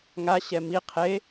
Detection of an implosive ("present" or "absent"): absent